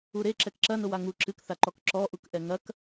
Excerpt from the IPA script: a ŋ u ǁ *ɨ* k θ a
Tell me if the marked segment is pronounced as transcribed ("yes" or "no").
yes